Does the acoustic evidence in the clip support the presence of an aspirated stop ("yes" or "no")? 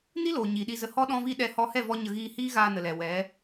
no